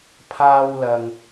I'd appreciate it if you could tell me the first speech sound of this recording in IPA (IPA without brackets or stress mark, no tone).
pʰ